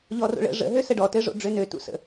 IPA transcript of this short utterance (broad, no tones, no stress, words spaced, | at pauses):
ʎɔro̰ɭə̰ ʐə̰ ɦøsəɖɔ tɘʐo̰ɖ͡ʐønø tṵsə̰